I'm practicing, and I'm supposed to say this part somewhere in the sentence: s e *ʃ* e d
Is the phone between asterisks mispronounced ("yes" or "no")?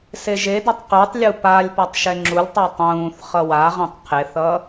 yes